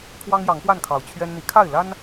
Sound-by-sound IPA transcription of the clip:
kʰ w ɑ˦ ŋ j ɑ˨˦ ŋ p w a˥˨ n kʰ ɑ˨˩ ʊ̯ t͡ɕʰ ɥ ɛ˦ n n̪ i˨˦ kʰ a˥˨ ɪ̯ l a˦ n

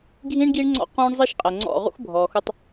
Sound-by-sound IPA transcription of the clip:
ɡʱ ĩ˦ ɳ ɡ i˦ ɳ ŋ͡ǀ ɔ̰˦ q ũː˦ ɳ zˤ i˦ ʃ qʼ əː˨ ŋ͡ǀ ɔ̰˦˨ ʁ ṵ˦ x bʱ ɔː˨ x u˧ tˤ

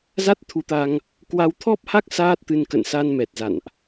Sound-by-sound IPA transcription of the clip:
z a˦˥ t̚ t̪ʰ u˨˦ t̪ a˧ ŋ | k w a˧ w t̪ʰ ɔ˦˥ p̚ h a˦˥ k̚ s aː˦˥ t̚ t̪ ɨ˧ n k ə̰˧˨ n s a˧ n m ɛ˨˩ t̚ z a̰˧˨ n ʔ

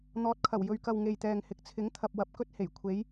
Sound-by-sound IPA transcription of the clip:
n̪ ɔː˨˥ t̚ kʰ ɐ˨˩ w j ɵ˨ ɥ k ɐ˨ w ŋ e˨ j t̪ ɛː˨ ŋ h ɪ˨˥ k̚ t͡sʰ ɪ˨˥ ŋ t̪ʰ ɐ˨ p̚ w ɐ˨ p̚ k ɵ˥ t̚ h e˨˩ j kʷʰ e˨˧ j

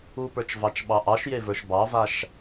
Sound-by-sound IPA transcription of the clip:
u p ə˞ t͡ʃ v ɑ t͡ʃ ɓ ɑ ʔ ɑ ʃ j e v ə˞ ʃ b ɑ v a ʃ

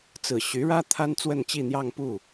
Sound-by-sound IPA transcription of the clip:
t͡s ɹ̩˨˩ ɕ y˧˥ ɻ ä˥ t̪ʰ a˥ n t͡s w ə˥˧ n t͡ɕ i˥˧ n̪ j ɑ˥˧ ŋ p u˥˩

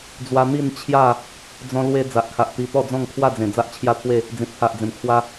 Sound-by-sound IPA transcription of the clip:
d͡z w a˧ n̪ i˥˧ n t͡ɕʰ j a˥˧ | d͡z ɔ̃˧ l w e˧ d͡z a˨ ʔ kʰ a˨ ʔ t̪ i˧ t̪ ɔ˥˧ d͡z ɔ̃˥˧ ŋ kʰ w a˥˧ d͡z ẽ˨˩ d͡z a˦ ʔ t͡ɕʰ j a˦ t̪ʰ w e˥˧ | d͡z ĩ˨ t̚ pʰ a˨ ʔ d͡z ẽ˨˩ m kʰ w a˧

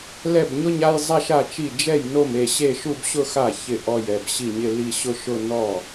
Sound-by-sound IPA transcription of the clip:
l ɛ˥˩ b ɲ ʊ˥˧ ɲ a˥˧ j zˤ a˥˧ ʃ a˥˩ t͡ʃ i˥˩ d͡ʒ ɛ˥˩ j n o˥˩ m e˥˩ ɕ e˥˧ ʃ u˥˧ b ɕ ʊ˥˧ x a˥˩ ç ɪ˥˩ ʔ ɔ˥˩ j ɛ˥˩ b ɕ i˥˩ ɲ ɪ˥˧ l i˥˧ ɕ ʊ˥˧ ʃ ʊ˥˧ n ɔ˥˩

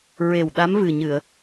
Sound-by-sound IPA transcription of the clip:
ɹ e˨˩ w ɗ a˧˥ m v ɨ˨˩ ɲ ɨ˨˩˨ ə̯

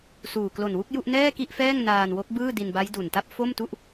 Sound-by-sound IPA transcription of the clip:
s uː˨˩ k l o˨˩ n w u˥˩ k̚ j u˥˩ ʔ n ɛː˥˩ k i˥˩ ʔ f ɛː˥˩ ŋ n aː˧ n w o˦˥ k̚ b ɯː˥˩ d i˧ n b a˦˥ j d u˨˩ n t a˥˩ p̚ f o˥˩ m t u˥˩ ʔ

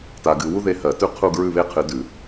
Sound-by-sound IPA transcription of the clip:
t a˨ ɡ ɨ˨ w u˦ ð e˦˨ h ɜ˨˩˦ t ʉ˦ qʰ u˦˨ ɡ ɹ ʉ˦˨ β e˦˨ qʰ ɨ˨˩˦ d ʉ˨˩˦

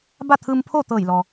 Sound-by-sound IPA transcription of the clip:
b a˥˨ t̪ʰ ɯː˧ m pʰ o˥˨ t̪ ɤː˧˩ j l ɔː˩

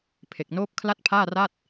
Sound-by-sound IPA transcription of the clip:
pʰ e˨˩ k̚ n oː˦˥ p̚ kʰ l a˥˩ t̚ pʰ aː˥˩ r a˥˩ t̚

